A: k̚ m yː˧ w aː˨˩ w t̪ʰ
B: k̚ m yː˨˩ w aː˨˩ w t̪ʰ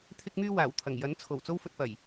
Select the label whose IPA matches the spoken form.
A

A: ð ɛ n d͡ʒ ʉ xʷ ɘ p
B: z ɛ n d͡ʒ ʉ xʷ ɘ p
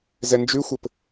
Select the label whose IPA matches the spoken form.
B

